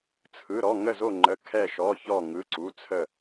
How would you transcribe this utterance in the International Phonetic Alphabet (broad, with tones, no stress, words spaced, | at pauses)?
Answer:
t͡sʰɯ˧˥˧ɾɔ˧˥˧ ŋə˥˧zo˥˧ ŋ͡ǃə˧˥˧ kʰɛ˥˧ʃɔ˧˥˧çɔ˥˧ ŋɯ˧˥˧ǀu˧˥˧ t͡sʰə˥˧